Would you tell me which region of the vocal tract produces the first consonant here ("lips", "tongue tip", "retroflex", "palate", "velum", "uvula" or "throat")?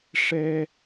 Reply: retroflex